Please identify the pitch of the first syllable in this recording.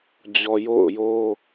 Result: low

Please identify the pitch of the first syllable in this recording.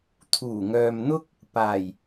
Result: low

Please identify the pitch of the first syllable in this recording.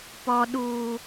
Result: low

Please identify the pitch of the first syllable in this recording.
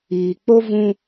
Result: low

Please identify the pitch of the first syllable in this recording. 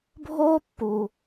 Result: high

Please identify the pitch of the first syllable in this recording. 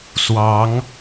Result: rising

